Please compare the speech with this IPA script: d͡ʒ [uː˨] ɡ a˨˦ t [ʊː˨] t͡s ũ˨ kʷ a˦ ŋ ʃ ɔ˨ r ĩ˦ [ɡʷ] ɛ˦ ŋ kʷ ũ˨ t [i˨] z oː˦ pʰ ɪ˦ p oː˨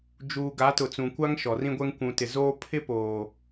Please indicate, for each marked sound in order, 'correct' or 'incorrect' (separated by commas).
correct, incorrect, correct, incorrect